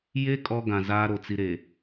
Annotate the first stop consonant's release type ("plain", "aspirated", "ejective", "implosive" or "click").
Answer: ejective